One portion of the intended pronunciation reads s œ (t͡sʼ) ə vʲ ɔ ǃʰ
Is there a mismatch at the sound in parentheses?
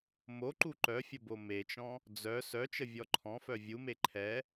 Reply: yes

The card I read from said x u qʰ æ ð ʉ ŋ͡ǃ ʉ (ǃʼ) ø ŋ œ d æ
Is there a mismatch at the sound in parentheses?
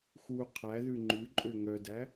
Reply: no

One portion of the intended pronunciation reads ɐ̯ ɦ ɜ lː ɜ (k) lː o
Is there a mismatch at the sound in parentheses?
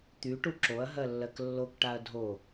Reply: no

